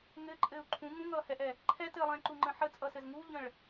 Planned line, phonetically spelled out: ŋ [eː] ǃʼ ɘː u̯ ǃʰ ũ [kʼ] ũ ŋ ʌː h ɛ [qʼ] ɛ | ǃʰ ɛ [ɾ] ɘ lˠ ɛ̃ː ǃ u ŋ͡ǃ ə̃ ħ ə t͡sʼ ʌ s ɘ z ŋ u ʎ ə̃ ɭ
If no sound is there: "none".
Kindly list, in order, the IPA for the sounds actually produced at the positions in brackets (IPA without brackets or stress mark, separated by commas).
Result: ɘː, ŋ, ʔ, t